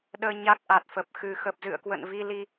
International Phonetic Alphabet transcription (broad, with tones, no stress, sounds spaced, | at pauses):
ɗ əː˧ ɲ a˦˥ k̚ ʔ a˨˩ t̚ f ə˨˩ p̚ x ɨ˨˩ x ə˨˩ p̚ z ɨ̰˧˨ ə̯ k w ə̰˧˨ n v i˧ l i˧